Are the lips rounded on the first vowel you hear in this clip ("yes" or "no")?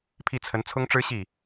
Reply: no